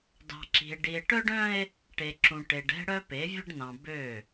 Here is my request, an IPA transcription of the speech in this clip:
d ɑ̤˨ ǁ i̤˨ e̯ ɖ i˨ e̯ ʈ œ˦ ɖ œ̃˦ e̯ | ʈ e˨ ǁ ũ˨ ʈ e˨ ɖ ɛ̤˦ ɽ œ˦ p e˨˦ vʲ ə˦ ɖ n ɑ̃˨ b ø˦˨

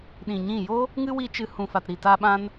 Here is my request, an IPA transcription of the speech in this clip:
ɗ ĩ˨ ɲ ĩ˦˨ j o˦ | ŋ ɨ˦ w i˦ t͡ʃ ɨ˧ h ũ˨ f a˨ t ɾ i˨ t a˧ ɓ ã˧ n

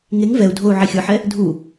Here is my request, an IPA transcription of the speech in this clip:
ŋ e ŋ v ɛ u̯ dʱ o u̯ ʕ i xʲ ɯ ħ ɛ | dʱ u

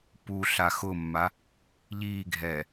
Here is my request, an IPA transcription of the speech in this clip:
p u ɬ a x ʊ mː a | ʎ iː ɡʱ ɛː

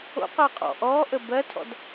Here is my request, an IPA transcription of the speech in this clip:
o̰ q əː qʼ ɔ̰ ʔ ɔː ʔ ə b ɜ tʰ ɔ̰ d

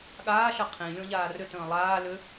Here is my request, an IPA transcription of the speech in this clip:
ɠ aː ʃ ə qʰ ĩ lʲ ɔ̃ ʎ aː r ʏ t ə̃ː lˠ aː l ʏ

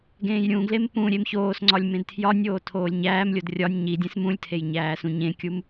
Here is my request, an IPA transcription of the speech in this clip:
ɡ ẽː j ɾʲ ũ ɡ l e m p ũ ɾʲ e m ç oː s ŋ͡ǀ ɒ lʲ m ẽ d tʰ j ɒ nʲ oː tʰ oː lʲ ɲ æː m lʲ o d rʲ ɒ nʲ ɲ i dʲ ẽ s m ũ lʲ tʰ e j ɲ æː s ũ ɲ ẽ kʲ u m

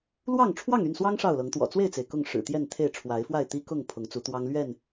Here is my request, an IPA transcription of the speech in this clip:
l w ɑ˥˨ ŋ ʈ͡ʂʰ w ɑ˥˨ ŋ y˥˨ n s w ɑ˦ ŋ ʂ ɑ˥˨ ʊ̯ l ɤ˨˦ ŋ t̪ w ɔ̰˨˩ t͡s w e˥˨ ɪ̯ t͡s e˩ ɪ̯ k ʊ˥˨ ŋ ʂ ɻ̩˨˩ t̪ j ɛ˥˨ n t̪ʰ e˥˨ ɪ̯ ʈ͡ʂʰ w a˨˦ ɪ̯ f w a˥˨ ɪ̯ t̪ i˦ k ʊ˥˨ ŋ pʰ ʊ˨˦ ŋ t͡s u˨˦ t̪ w ɑ˦ ŋ l ɥ ɛ˥˨ n

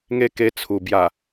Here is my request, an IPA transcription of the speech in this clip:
ŋ e˦ k e˧ t͡sʰ u˨˩ b j a˨˩

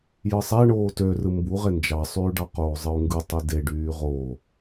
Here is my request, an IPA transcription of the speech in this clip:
j ɯ sˤ æ ɳ oː t ø r ɯ m b u ʁ e n d͡ʒ ɑ sˤ yː ɖ ɑ q oː zˤ ɯ u̯ ŋ ɡ ɯ tˤ i d e ɖ yː ʁ oː

